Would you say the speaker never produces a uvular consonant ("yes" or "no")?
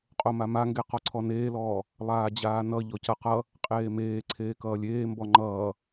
no